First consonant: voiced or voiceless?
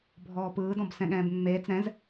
voiced